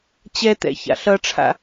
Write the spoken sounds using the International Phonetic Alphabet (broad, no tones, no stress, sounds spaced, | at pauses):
t͡ɕ ɛ t̪ ɛ̰ ç a̰ ɬ ʌ ʈ͡ʂʰ a̰